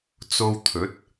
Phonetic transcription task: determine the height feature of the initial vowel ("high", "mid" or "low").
mid